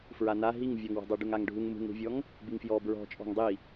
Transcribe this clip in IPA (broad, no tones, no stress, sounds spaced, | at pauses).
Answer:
f ɹ a n a ɦ i ŋ vʲ ɔ ŋ w ɔ̤ dˤ a ɖ u ŋ a ŋ ɖʱ u ŋ m ṳ ŋ ɾ ṳ vʲ ɔ ŋ | b i ŋ f j ɔ b ɹ ɔ̤ t͡ʃʼ ɔ̤ ŋ dˤ i